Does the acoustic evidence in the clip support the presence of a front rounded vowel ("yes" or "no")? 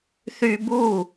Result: yes